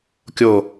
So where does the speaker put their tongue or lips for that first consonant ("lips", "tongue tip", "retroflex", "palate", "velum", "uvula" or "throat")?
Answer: velum